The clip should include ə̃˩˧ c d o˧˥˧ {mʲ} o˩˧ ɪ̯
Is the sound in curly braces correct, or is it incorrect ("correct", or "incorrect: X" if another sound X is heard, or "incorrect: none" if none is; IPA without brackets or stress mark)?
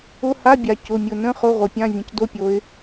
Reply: incorrect: pʲ